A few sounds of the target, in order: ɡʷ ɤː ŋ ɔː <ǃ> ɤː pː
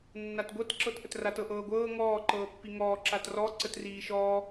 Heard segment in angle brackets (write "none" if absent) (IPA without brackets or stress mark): ǃ